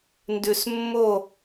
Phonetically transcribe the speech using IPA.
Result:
ndʉ˨smːo˦˨

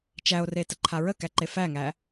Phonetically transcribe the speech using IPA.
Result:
t͡ʃæo̯retəǃʰa ɹəkæǃe fæŋæ

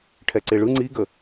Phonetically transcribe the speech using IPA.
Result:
ʈʰɛǀeɭɯ ŋ͡ǀiɡə

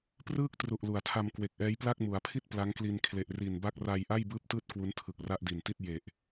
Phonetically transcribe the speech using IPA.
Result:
prɯː˥˩k̚tru˨˩ʔ lu˩˦a̯tʰa˧m kwe˨˩k̚ʔɛː˦˥jpla˥˩k̚ mu˩˦a̯pʰi˥˩t̚ pla˦˥ŋkli˧n kʰle˨˩ʔri˨˩nba˥˩k̚ ra˧jʔa˥˩j bɯː˦˥p̚tɯː˦˥t̚ kwu˦˥ntʰɯ˨˩k̚ra˥˩ʔ di˨˩nti˥˩t̚ je˨˩ʔ

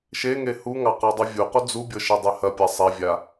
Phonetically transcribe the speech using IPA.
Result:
ʃeŋe huŋɑ qɑdˤyvʲuqu d͡zubʲɤ ʃedˤɛhɐpʲa sˤɛvʲa

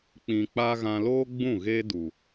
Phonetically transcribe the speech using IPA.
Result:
k͡pĩ˨k͡pa˧ ɣã˧loː˦ɡ͡bũ˦˨ ɣe˦du˨

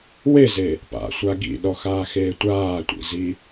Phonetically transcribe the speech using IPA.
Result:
weze | pa̰sʷa ɡḭɗɔxaːxeː tʷaːtʷḭzi

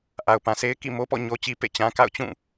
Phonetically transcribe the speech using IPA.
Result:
ʔa˨ʊ̯pã˨sʰe˦ɪ̯ kḭ˦˨mo˦pɔ̰˦˨ ɲo˦t͡ɕi˦ pḛ˦˨t͡ɕã˦ka̰˦˨ʊ̯ t͡ɕũ˦˨

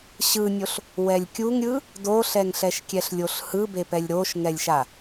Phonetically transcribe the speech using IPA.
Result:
ɕɯnʲoɬ | wɛlʲkʲuŋɾʲɯ | doɬɛŋɬɛʃkʲɛɬ lʲoɬhɯbepɛlʲ ɾoʃŋɛlʲʃa

